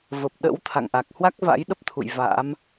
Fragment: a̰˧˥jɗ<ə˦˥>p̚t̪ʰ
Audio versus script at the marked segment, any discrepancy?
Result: no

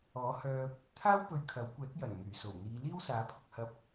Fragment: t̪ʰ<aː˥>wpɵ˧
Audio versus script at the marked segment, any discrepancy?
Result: no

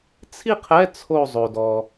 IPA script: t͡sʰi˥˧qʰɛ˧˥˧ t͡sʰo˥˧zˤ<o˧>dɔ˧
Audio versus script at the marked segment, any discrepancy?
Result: no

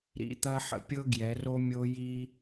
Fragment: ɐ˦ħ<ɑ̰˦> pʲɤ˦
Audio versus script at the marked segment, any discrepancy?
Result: yes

